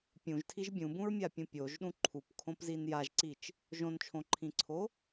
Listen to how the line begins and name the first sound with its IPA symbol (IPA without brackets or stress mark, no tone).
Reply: pʲ